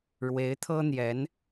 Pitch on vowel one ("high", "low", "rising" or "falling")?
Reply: rising